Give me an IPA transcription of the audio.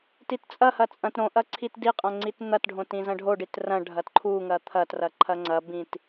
t i t t͡sʼ ɐ h ɐ t͡sʼ ɐ̃ t ɾ õ ʔ ɐ ǀʰ i t d i qʼ ɐ̃ ŋ͡ǀ i t n̪ ɐ t ɖʱ õ t ĩ z ɐ̃ ɖʱ o ɖ i t r ɐ̃ ɖʱ ɐ t ǃʰ u ŋ ɐ t̪ʰ ɐ t r ɐ ǃʰ ɐ ŋ͡ǀ ɐ b ĩ t

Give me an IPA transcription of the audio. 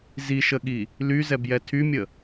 z i ʃ ə ɠ i | l y z ɛ b j ɛ tʰ y mʲ ə

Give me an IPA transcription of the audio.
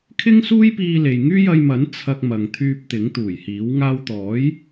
kʰ ɪ˥ ŋ s uː˥ j p iː˧ l e˨ j ŋ yː˥ j ɐ˧ j m ɐ˨˥ n t͡sʰ ɐ˧ k̚ m ɐ˨ ŋ t̪ʰ yː˧ p̚ t̪ ɪ˨˥ ŋ t̪ uː˨˩ j h iː˨˥ w ŋ aː˧ w t̪ ɔː˨˥ j

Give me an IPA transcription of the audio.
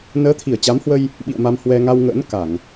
n əː˨˦ t̪ʰ i˧˩ ə̯ t͡ɕ a˨˦ m h w ə˧ j | ɓ ḭ˧˨ ə̯ m a˧ m h w ɛ˧ ŋ a˧ w ŋ ə̰ː˧˥ n k a˧˩˨ ŋ

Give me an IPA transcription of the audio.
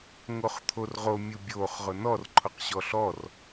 ŋ o χ t̪ʰ o r ʁ o mʲ u bʲ o χ ʁ ʊ n ɔ r ǃʰ ʊ q ɕ ɔ ɬ ɔ r

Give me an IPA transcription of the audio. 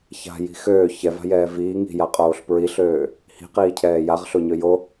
ç a̤ j i̤ x øː ç ɛ v a̤ j ɛː v iː ŋ i̤ j a qʼ oː ɬ p ɹ i ɬ øː | h i̤ q iː cʰ ɛː j a ʁ ɬ o ɲ ø j o

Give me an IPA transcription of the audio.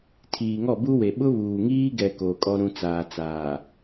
tʰ iː˨ ŋ ɔ˦˨ b u˦ w e˨ ɓ ʊ˦ β uː˨ ŋ iː˦ ɡ ɛ˨ k oː˨ kʼ ɔ˦ ɾ ũ˦ t͡s aː˨ t͡s aː˨

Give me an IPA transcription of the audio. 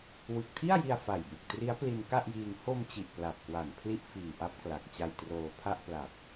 w ɯ˨˩ k̚ tʰ i˥˩ a̯ j i˧ a̯ f a˨˩ j b u˨˩ k̚ t r i˦˥ a̯ p l i˧ n k a˥˩ ʔ j iː˧ ŋ h o˧ m t͡ɕ i˨˩ ʔ p l a˨˩ p̚ k w a˨˩ n pʰ l i˥˩ ʔ f iː˨˩ ʔ a˦˥ p̚ k l a˨˩ k̚ t͡ɕ a˧ j t r oː˧ pʰ a˥˩ ʔ p l a˨˩ p̚

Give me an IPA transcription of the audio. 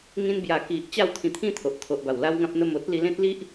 ŋ ĩ˧ n b j a˨˩ k i˨ ʔ t͡ɕ a˥˧ w t̪ʰ ĩ˧ t̪ʰ ĩ˥˧ t̪ʰ o˨ ʔ t̪ʰ o˨ ʔ b a˨˩ w l a˦ w ŋ ã˦ p̚ n̪ ə˥˧ m o˦ t̚ l i˧ l ẽ˦ t̚ l i˦ ʔ

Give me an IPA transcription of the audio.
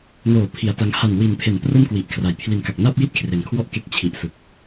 n oː˨˩ pʰ i˨˩ a̯ t a˧ ŋ h a˨˩ n w i˩˦ n pʰ e˩˦ n p r o˥˩ m k w i˨˩ ʔ kʰ r a˨˩ j pʰ l i˨˩ n k a˨˩ k̚ n a˥˩ p̚ j i˥˩ t̚ kʰ r e˩˦ n kʰ w ɔ˥˩ ʔ k e˦˥ k̚ t͡ɕʰ i˨˩ ʔ s ɯ˨˩ k̚

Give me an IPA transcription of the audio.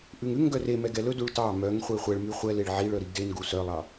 ʔ ʉ ŋ ʉ ŋ ɡ œ r e m ɛ ɡ ɛ l ɵ d u ɭ t ɑ m œ ŋ χʷ e χʷ ɛ ɭ m y χʷ ɛ l e ɭ ʕ i ɭ œ ɾ i ɡ d e n ɡ u s œ lˠ ɑ

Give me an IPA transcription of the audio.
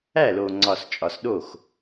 æ˥˩ l o˨ ŋ͡ǀ ɒ˨ s t͡ʃʼ ɒ˨ s ɗ o˥˩ x

